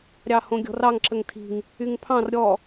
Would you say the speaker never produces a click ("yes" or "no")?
no